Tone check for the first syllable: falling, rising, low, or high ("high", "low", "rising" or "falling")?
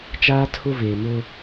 high